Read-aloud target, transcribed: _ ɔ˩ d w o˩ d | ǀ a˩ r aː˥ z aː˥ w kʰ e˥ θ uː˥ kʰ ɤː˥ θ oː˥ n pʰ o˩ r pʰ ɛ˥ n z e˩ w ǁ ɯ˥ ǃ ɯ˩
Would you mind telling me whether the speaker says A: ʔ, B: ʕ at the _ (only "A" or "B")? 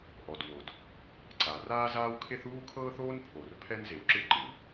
A